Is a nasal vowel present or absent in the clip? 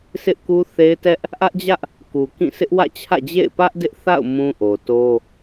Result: present